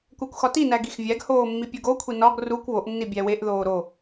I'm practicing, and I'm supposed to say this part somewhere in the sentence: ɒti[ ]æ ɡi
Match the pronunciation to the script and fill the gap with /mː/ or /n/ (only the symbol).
n